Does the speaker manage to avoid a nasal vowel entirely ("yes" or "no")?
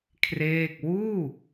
yes